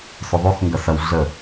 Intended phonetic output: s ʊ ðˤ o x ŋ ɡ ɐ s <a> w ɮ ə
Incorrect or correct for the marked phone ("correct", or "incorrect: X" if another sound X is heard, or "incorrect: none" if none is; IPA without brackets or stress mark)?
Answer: incorrect: ɐ